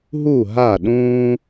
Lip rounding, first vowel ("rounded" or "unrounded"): rounded